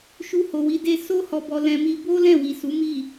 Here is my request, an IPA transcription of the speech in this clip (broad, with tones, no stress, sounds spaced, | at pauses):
ʃ u˧ h o˨ w i˨˦ d e˧ s o˦ h ɔ˧ b ɔ˧ l ɛ̃˧ m i˦ b o˦ l ɛ̃˦˨ w i˨ s u˨˦ m i˦˨